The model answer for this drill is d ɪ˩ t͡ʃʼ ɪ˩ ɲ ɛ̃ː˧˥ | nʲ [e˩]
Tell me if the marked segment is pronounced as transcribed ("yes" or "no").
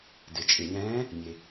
yes